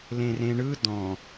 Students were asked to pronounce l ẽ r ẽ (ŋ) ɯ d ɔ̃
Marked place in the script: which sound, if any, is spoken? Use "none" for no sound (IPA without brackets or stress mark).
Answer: ɳ